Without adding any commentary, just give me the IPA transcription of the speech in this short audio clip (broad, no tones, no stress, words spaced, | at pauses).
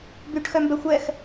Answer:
byʈ xœmbɛxʷɛx